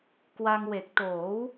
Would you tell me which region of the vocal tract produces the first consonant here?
velum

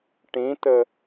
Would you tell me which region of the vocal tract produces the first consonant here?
retroflex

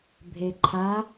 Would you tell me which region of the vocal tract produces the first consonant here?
lips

